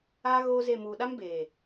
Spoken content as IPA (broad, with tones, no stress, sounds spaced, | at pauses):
a˦ ɣ o˦ z e˦˨ m uː˨ ɗ a˦ m b eː˨